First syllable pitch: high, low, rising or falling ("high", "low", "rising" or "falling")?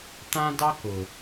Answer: high